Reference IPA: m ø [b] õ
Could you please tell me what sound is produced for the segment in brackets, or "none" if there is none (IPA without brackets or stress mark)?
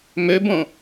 b